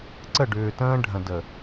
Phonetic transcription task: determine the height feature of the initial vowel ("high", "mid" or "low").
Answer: mid